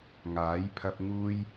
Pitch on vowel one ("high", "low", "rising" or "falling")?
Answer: rising